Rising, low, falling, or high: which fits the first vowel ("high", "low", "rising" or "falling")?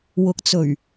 low